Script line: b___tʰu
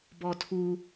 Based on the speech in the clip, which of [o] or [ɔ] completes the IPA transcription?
ɔ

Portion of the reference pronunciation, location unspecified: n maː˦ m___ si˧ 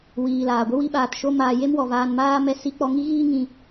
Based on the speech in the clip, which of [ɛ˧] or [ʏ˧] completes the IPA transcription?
ɛ˧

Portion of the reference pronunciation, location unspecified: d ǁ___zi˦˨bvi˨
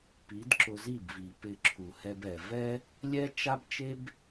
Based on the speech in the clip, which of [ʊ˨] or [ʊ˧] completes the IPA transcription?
ʊ˧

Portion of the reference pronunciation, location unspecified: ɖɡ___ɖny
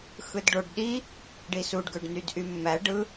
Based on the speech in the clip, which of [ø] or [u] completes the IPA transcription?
ø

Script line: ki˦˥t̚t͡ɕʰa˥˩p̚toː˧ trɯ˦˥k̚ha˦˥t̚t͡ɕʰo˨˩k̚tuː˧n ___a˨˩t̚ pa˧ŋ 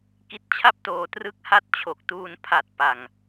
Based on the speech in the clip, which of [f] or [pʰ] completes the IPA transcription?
pʰ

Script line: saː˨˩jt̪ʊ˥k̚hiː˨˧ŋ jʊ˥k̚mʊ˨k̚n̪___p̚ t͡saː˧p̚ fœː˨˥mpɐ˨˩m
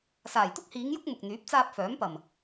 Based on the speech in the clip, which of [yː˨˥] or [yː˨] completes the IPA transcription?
yː˨˥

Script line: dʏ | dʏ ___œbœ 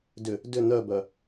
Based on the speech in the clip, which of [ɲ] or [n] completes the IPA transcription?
n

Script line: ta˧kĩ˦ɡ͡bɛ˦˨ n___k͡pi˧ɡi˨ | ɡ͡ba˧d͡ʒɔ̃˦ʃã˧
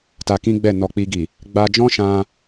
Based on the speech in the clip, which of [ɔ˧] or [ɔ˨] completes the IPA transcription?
ɔ˨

